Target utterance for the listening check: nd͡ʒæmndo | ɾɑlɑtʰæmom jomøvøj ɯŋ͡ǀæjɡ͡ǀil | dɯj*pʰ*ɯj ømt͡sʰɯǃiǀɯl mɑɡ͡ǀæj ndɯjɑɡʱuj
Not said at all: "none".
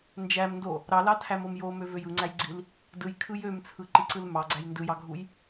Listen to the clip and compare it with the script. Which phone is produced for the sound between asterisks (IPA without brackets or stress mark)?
kʰ